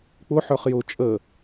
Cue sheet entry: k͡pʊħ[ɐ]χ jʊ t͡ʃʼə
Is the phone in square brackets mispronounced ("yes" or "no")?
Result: yes